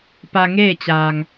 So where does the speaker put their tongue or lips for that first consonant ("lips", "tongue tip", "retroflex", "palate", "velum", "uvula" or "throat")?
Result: lips